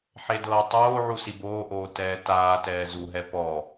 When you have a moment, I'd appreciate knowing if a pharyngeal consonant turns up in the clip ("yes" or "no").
yes